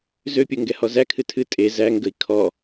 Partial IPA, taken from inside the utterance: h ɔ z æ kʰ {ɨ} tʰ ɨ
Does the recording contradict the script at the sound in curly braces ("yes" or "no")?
no